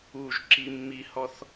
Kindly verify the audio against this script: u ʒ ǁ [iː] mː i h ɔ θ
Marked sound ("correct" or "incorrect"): incorrect